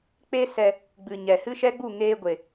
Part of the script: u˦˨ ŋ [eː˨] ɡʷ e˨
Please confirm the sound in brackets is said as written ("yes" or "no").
no